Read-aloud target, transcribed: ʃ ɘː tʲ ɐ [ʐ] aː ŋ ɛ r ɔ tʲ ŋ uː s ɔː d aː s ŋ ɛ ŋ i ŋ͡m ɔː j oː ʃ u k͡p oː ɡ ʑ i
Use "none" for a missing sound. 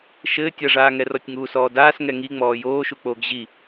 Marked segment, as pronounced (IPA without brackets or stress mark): ʐ